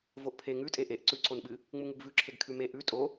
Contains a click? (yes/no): yes